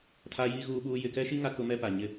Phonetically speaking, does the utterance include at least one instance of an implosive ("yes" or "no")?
yes